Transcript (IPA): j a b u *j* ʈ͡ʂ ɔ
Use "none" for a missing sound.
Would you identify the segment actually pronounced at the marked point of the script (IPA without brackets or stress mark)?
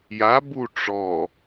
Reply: none